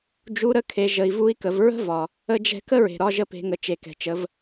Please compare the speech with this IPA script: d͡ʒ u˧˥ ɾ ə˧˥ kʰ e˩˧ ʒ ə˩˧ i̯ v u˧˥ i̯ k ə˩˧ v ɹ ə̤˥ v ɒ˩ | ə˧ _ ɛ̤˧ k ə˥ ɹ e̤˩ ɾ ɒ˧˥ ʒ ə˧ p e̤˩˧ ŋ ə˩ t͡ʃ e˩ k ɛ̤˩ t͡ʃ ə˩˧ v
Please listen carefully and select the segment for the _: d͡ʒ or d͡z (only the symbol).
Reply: d͡ʒ